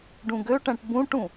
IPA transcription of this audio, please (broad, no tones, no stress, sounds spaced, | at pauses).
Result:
ɖ ũ ɡ ø ʈ æ̃ ʈ b ũ ʈ ũ